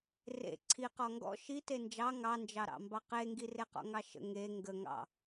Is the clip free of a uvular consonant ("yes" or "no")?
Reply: no